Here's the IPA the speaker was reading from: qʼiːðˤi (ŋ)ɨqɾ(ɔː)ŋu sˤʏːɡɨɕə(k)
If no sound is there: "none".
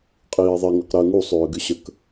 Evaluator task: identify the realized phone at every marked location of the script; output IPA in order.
ŋ, əː, k

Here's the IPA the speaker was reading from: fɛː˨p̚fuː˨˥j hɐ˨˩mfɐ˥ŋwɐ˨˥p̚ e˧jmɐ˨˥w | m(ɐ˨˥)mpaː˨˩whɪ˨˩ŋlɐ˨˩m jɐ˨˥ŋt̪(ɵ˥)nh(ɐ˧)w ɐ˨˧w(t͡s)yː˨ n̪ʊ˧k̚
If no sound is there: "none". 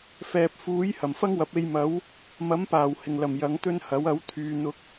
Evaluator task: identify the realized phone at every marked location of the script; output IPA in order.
ɐ˨˥, ɵ˥, ɐ˨˥, t̪ʰ

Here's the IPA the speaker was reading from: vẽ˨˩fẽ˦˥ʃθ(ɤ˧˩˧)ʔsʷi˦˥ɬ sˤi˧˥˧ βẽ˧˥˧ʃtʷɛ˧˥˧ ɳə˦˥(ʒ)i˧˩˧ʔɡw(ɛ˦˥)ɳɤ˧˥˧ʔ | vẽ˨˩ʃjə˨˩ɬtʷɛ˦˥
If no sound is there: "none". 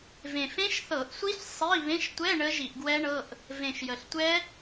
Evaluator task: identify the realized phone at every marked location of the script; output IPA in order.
ɤ˧˩˧, ʒ, ɛ˦˥

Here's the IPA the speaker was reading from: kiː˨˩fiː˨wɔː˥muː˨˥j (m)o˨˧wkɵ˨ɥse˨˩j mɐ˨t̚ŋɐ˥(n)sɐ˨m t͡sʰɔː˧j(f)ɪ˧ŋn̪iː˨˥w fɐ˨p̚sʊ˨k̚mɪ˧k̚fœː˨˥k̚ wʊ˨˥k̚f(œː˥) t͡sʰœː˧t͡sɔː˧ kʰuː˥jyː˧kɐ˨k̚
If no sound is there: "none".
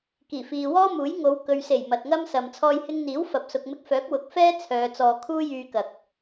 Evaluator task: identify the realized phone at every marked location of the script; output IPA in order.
ŋ, m, h, ɛː˥

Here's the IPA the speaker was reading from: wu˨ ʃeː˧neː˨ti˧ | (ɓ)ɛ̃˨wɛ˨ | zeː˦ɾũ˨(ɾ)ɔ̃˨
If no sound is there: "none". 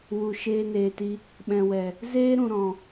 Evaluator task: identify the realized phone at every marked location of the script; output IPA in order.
ɓ, ɾ

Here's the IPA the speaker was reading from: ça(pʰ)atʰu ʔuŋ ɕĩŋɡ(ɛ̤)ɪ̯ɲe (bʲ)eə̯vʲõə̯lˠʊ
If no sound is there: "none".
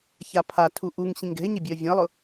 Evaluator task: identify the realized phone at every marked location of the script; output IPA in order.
pʰ, ɛ̤, bʲ

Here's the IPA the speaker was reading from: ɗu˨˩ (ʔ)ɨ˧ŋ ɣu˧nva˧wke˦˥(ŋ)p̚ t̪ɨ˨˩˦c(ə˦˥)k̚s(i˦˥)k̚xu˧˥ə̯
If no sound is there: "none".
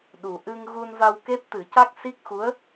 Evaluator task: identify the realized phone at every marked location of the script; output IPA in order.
ʔ, none, a˦˥, i˦˥

